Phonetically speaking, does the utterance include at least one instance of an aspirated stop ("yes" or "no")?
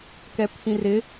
yes